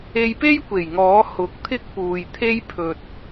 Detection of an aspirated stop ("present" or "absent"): present